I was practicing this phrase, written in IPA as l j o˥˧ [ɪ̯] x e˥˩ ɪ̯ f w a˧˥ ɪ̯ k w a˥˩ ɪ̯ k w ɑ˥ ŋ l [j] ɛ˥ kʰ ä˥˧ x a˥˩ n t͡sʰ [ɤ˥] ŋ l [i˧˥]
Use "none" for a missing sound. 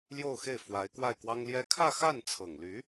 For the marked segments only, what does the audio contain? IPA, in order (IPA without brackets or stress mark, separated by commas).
ʊ̯, j, ɤ˨˩, y˧˥